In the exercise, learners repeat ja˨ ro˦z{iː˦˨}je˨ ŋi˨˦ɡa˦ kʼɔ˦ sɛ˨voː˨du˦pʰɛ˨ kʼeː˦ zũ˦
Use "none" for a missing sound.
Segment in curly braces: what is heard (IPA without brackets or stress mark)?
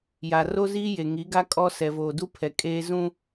iː˦